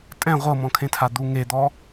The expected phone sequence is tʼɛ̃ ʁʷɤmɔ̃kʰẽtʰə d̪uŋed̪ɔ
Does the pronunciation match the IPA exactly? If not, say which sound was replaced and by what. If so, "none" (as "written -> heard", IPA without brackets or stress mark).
ə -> a